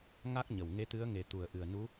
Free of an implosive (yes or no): yes